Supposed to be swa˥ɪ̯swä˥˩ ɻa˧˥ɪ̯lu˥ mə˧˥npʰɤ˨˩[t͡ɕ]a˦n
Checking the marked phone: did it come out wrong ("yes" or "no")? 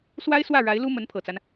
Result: yes